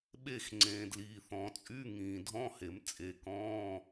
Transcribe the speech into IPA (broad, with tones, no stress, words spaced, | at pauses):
ɓe˦˨x ŋ͡ǀẽː˨dliː˨θɔ̃˨˩˦t͡sʼy˧˥˧ ŋĩː˨dʱɔ̃˧˥˧he˨˩˦m t͡sʼe˨ kɔ̃ː˧˥˧